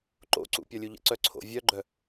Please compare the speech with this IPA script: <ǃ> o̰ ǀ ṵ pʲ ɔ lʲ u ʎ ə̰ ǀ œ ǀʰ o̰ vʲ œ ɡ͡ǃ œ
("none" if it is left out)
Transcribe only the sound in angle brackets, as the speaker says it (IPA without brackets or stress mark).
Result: ǃ